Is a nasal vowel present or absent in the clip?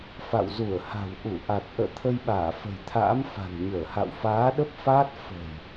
absent